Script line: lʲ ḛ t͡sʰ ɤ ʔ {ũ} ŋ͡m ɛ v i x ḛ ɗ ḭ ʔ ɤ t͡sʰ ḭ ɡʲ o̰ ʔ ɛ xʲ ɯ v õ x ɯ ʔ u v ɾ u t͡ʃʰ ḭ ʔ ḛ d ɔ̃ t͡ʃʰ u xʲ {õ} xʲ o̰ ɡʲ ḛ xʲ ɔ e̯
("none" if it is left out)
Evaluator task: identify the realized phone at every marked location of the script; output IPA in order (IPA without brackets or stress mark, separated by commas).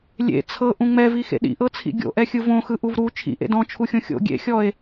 ũ, õ